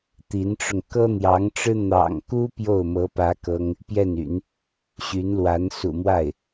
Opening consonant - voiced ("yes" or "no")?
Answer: no